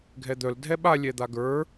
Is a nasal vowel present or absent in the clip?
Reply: absent